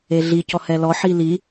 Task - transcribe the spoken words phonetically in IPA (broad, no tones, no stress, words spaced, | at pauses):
eɮicɔ hɛlɔħi li